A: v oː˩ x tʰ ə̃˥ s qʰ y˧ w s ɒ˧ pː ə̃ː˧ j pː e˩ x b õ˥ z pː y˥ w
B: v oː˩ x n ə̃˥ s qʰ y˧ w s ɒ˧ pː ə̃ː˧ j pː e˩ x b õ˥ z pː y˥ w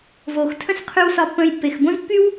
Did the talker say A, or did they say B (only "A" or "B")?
A